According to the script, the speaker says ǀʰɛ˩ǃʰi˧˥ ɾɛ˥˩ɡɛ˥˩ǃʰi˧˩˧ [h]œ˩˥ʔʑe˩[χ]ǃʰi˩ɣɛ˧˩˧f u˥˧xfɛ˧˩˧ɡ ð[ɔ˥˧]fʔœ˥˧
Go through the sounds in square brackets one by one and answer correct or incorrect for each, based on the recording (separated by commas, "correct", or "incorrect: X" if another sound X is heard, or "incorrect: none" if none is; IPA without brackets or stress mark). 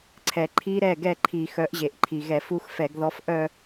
incorrect: x, incorrect: ʔ, incorrect: ɔ˧˥